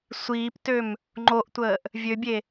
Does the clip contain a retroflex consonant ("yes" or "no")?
no